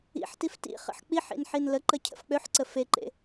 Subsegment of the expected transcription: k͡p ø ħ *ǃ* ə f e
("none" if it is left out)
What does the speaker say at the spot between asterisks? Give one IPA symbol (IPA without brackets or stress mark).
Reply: ǀ